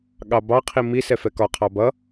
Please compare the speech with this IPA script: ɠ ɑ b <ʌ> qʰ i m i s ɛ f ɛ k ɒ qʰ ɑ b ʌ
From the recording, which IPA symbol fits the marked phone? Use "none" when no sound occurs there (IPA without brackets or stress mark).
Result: ɑ